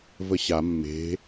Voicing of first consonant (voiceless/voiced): voiced